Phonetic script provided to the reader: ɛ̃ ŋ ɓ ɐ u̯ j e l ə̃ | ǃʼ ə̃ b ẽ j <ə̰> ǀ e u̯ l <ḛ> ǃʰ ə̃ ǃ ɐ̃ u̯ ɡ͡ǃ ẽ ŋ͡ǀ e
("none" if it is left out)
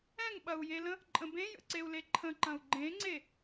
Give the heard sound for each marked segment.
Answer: ə̰, e

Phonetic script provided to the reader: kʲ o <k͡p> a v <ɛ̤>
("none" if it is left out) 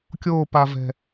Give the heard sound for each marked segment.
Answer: p, ɛ̤

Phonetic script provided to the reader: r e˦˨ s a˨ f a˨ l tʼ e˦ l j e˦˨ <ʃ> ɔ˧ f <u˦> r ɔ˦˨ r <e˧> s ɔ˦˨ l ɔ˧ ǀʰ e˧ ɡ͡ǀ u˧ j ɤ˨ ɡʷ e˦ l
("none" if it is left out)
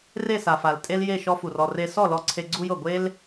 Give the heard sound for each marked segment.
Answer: ʃ, u˨, e˧

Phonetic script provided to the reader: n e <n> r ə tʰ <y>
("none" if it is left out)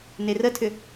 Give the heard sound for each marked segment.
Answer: none, ʏ

